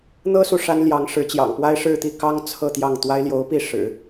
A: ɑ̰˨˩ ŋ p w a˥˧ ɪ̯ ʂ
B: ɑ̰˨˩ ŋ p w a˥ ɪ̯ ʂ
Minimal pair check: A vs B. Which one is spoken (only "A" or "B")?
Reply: B